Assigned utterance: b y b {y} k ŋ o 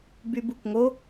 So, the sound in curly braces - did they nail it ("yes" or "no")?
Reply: no